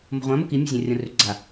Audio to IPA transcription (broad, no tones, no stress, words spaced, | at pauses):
mo̤ʁʷã moki mʲo̤zʲãrʲõrʏ ɡ͡ǀa